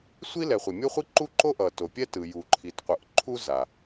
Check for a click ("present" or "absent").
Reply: present